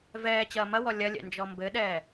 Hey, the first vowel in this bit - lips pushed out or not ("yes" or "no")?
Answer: no